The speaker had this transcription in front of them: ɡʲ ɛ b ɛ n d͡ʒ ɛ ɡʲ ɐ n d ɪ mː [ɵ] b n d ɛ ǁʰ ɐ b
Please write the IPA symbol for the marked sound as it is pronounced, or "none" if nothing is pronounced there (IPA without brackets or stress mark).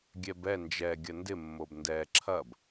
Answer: o